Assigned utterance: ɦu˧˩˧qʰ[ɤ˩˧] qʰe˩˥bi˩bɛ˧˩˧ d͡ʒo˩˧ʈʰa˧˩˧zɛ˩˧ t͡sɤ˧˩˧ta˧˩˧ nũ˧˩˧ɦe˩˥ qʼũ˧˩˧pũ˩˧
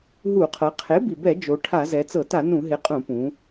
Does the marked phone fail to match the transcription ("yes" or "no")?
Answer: no